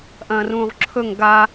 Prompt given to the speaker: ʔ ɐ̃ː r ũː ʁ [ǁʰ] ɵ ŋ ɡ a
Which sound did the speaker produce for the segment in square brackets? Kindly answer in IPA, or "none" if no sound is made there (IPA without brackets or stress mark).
ǁʰ